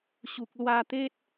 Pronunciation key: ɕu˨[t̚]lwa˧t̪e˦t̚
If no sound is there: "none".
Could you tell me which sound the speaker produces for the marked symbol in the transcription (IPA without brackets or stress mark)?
k̚